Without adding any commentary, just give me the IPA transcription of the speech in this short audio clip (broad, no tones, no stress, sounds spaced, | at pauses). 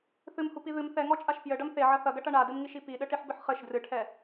θ ɨ m h u p i ð ɨ m θ ɛ ŋ ɔ t͡ʃʼ a ʃ p j ɘ ɖ ɐ m θ e ʕ ɐ θ ɐ ɡ ɐ ʈ ɐ ɳ a d ɨ m ŋ i ʃ i p i ɗ ɘ ʈ i ħ b ɨ ħ χ ɘ ʃ d r ɨ ʈʰ ɛ